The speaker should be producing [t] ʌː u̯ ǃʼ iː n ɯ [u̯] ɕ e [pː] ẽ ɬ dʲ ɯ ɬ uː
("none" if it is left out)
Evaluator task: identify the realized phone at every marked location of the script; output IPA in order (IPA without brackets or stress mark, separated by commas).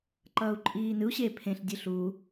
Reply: ǃ, u̯, pʰ